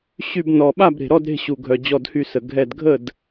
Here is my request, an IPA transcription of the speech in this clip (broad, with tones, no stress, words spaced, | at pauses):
ɕy˧˩bnɔ˩ɓa˥˩bɾe̤˩ ɾɔ˥˩dɾe̤˧˩ ɕu˩ɡʱœ˩ d͡ʑɔ˧˩dhy˧˩sə˩ ɡʱɛ˧˩dɡʱə˥˩d